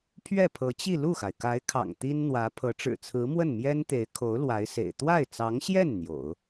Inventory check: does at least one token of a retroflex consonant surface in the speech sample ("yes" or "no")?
yes